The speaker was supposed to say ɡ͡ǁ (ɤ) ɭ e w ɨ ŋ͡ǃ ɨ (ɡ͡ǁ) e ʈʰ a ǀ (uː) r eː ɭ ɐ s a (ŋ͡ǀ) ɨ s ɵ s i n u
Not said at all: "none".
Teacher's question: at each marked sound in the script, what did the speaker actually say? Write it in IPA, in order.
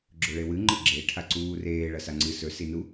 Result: ɵ, ɡ͡ǁ, uː, ŋ͡ǀ

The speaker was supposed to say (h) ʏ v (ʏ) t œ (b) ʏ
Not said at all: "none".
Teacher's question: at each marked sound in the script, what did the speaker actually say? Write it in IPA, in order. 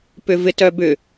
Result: p, ɪ, b

